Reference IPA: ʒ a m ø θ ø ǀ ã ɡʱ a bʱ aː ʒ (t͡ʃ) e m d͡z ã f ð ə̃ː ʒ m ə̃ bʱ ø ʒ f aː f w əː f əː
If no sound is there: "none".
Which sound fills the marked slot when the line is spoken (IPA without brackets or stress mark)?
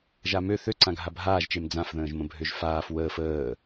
t͡ʃ